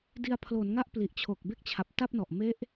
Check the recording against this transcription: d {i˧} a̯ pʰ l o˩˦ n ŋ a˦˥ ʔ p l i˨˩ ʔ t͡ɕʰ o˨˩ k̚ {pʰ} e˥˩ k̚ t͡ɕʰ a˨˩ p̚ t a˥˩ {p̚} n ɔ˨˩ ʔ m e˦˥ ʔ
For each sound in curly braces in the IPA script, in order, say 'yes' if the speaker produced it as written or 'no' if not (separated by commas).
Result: yes, no, yes